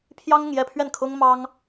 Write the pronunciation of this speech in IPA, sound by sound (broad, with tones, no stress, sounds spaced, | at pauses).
pʰ j ɑ˥ ŋ ʊ˨ ŋ j ɛ˥˧ pʰ ɥ ɛ˥˩ n kʰ ʊ˥ ŋ m ɑ˥ ŋ